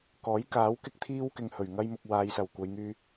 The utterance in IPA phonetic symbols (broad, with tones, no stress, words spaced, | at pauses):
kɔː˨˥jkaː˨˥w kɪ˧k̚t̪ʰiː˧w kɪ˨ŋhɵ˨˩ɥŋɐ˧jmʊ˨k̚ waː˨˧jsɐ˨˩wkʷɐ˨˧jŋyː˧